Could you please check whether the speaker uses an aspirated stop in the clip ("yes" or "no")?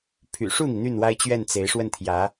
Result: yes